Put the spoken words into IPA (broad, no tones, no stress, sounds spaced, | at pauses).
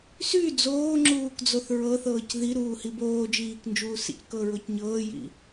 s y d͡z oː ŋ͡ǁ uː k d͡z o θ ɹ ɤ θ ɤː c ð i ɾ uː h i b oː d͡ʒ iː k n d͡ʒ uː s ḭ c k ɤ ɹ o c ɲ ɤː j ḭ